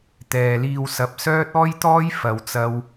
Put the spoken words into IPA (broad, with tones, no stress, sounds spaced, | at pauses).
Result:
t̪ ɛː˨ l iː˧ w s ɐ˨˥ p̚ s œː˥ t̚ ɔː˥ j t̪ ɔː˥ j f ɐ˨ w t͡s ɐ˧ w